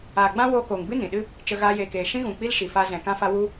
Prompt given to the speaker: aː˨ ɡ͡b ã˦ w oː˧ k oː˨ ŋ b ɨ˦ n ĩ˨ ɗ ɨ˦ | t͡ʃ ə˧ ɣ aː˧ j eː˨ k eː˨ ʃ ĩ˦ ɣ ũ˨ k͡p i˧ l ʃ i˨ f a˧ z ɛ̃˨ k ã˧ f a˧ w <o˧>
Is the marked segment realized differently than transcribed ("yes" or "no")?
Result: yes